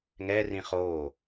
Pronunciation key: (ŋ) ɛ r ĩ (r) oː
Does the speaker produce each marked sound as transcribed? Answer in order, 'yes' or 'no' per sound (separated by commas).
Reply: yes, no